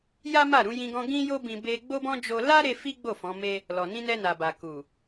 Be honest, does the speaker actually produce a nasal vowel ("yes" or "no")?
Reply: yes